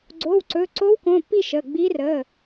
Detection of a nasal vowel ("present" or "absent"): present